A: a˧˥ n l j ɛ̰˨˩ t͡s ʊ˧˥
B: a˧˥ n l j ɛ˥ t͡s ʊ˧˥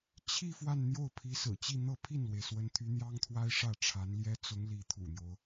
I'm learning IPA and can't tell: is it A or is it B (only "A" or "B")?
B